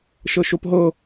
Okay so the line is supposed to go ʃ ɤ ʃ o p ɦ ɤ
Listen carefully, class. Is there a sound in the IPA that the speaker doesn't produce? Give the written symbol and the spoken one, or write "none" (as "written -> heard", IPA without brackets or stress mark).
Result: none